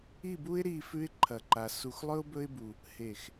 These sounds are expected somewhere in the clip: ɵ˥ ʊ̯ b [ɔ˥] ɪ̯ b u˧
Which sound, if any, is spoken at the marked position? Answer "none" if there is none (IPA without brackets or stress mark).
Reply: ɵ˥